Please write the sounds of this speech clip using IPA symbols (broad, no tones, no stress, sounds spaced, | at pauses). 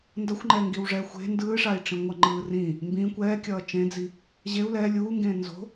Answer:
n d ʌ xʷ ŋ͡ǃ ɛː ŋ ɡ i w ʐ ɛ xʷ e̤ n d ɯː ʂ a i̯ ʈ͡ʂ ĩ ŋʷ ʌ ŋ͡ǃ ɯː r ĩ | m b ĩ kʷ ɛː kʲ ʌː t͡ʃ ẽ d͡z i | ʑ e u̯ l ɛ lʲ uː ŋ ɡ ẽː n z o̤